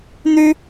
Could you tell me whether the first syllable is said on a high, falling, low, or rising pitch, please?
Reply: high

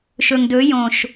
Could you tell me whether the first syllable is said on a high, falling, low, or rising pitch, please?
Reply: low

